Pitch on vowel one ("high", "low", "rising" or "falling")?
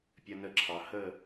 high